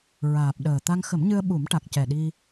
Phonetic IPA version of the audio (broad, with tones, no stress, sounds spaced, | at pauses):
ɹ aː˨˩ p̚ ɗ əː˨˩ t̪ a˧ ŋ x ə˨˩˦ m ɲ ɨ˧ ə̯ ɓ u˨˩˦ m ʈ a˨˩ k̚ c ɛ˨˩ ɗ i˧